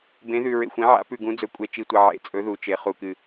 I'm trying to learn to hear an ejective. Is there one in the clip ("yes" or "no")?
yes